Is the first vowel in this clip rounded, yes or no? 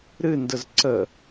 no